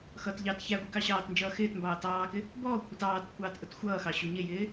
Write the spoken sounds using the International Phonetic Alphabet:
x ʌ t ʎ ɑ t ç æ ɡʷ i k ɑ ɕ ɑː t n d͡ʒ ʌː x ɪː t m b ɑː t ɑː k ɪ | b ɔː kʷʰ i t ɑː t kʷʰ ɑː t ʔ ʊ t xʷ ʌː x ɑ ɕ u ɲ ɪ j ɪː

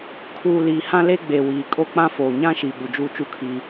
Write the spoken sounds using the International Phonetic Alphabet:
kʰ uː˨ l iː˨ h ã˦ l e˦ ɡ͡b e˨ w iː˨ kʼ o˦ k͡p ã˦ f oː˨ ɲ ã˦ ʃ i˨ ɓ u˨ d͡ʒ uː˦ t͡ʃ u˦ kʰ iː˦

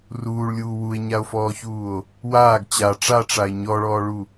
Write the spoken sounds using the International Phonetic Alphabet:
r uː ɭ lʲ uː w u e̯ ɲ a o̯ f ɔː ç uː o̯ | w aː ɡ t͡ɕ a ʈ͡ʂ a ʈ͡ʂ a e̯ ɲ ɔ ɭ ɔː ɭ u

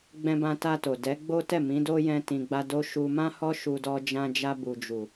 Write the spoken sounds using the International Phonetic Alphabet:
ɡ͡b ɛ̃˧ b ã˧ t a˧ t o˨ d ɛ˨˦ ɡ͡b o˦ t ɛ˦˨ m ĩ˨˦ d o˦ j ɛ̃˧ t ĩ˨ ɡ͡b a˧ d o˦ ʃ u˧ m ã˦ h ɔ˦ ʃ u˧ d ɔ˧ d͡ʒ ã˧ d͡ʒ a˧ b u˨ d͡ʒ u˨

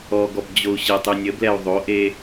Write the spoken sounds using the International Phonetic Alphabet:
ɔ ɡ ɔ b d͡ʑ o u̯ ɕ ə tˤ ʉ nʲ ə b l ɛ u̯ ðˤ o ʔ e

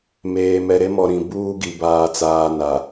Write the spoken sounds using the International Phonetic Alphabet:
m eː˨ m ɛ˨ ɾ e˦ m ɔ˨ ɾ ĩ˨ b uː˦ ɡ i˨ b aː˨ t͡s aː˨ n a˨

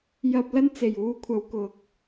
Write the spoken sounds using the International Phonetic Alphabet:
j ɐ˥ p̚ l ɐ˥ n t͡s e˨˩ j uː˧ kʷʰ ɐ˨˧ w k ʊ˨˥ k̚

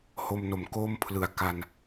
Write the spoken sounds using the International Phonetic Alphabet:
h o˧ m n o˨˩ m k o˥˩ m pʰ l ɯ˨˩ a̯ k a˧ n

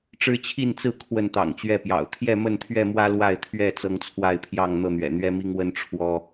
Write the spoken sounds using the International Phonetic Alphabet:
ʈ͡ʂ ɻ̩˦ t͡ɕʰ i˥˨ n t͡s ɹ̩˥˨ kʰ w ə˥˨ n t̪ ɑ̰˨˩ ŋ t͡ɕ ɥ ɛ˥˨ p j ɑ̰˨˩ ʊ̯ t̪ʰ j ɛ˥˨ m ə˥˨ n t̪ʰ ɥ ɛ˥˨ m w ä˦ l w a˥˨ ɪ̯ t̪ʰ ɥ ɛ˥˨ t͡s ɤ˦ ŋ t͡sʰ w a˥˨ ɪ̯ pʰ j ɑ˥˨ ŋ n̪ ɤ˥˨ n̪ ɥ ɛ̰˨˩ n̪ ɥ ɛ˦ m i˦ ŋ w ə˦ n ʈ͡ʂʰ w ɔ˦

